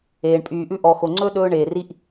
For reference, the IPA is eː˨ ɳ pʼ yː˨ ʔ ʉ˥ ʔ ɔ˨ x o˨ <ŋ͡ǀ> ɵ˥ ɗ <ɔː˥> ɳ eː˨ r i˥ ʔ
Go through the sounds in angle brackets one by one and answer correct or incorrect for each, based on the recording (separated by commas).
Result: correct, incorrect